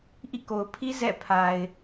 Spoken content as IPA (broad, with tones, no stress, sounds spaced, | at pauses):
ʔ ḭ˦˨ k o˨ ʊ̯ pʰ i˦ z ɛ̰˦˨ pʰ a˨ ɪ̯